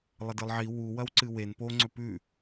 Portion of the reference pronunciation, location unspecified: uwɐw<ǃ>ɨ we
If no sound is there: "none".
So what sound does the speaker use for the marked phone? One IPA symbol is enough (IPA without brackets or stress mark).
ǀ